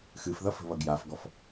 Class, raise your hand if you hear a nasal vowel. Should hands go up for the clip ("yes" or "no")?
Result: no